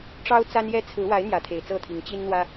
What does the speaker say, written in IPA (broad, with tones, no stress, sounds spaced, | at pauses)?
ʈ͡ʂ ɑ˦ ʊ̯ t͡s a˦ n j ɛ˦ t͡sʰ ɹ̩˨˦ w a˨˦ ɪ̯ n̪ j ä˨˦ t̪ʰ e˨˩ ɪ̯ t͡s ɤ˥˨ t̪ʰ i˨˦ ŋ t͡ɕ i˦ n n̪ w ä˦